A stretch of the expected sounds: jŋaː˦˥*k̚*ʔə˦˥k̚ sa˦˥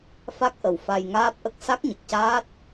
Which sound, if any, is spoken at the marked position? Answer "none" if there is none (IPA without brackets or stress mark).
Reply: p̚